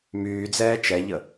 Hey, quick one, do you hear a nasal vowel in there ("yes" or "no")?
no